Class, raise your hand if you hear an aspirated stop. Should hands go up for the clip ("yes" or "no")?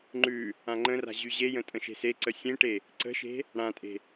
no